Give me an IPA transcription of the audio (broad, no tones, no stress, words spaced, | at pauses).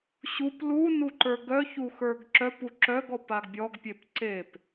ɕup lunuǃə˞ ɡœçuxə˞ɡ ǁœpu ǁœɡɔpaɡ bʲɔɡpʲep ǀep